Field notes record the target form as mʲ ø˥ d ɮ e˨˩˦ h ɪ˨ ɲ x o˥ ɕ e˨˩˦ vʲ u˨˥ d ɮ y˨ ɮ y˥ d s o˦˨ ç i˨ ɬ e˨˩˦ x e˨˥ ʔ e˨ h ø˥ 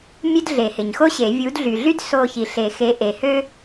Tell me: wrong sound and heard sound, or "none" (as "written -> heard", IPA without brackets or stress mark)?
none